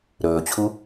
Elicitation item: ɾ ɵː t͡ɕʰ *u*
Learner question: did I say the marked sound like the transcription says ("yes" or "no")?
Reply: yes